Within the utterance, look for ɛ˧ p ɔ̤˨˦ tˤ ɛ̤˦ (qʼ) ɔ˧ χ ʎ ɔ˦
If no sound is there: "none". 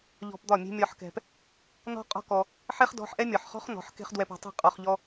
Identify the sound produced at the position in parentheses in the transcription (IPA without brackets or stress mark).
qʼ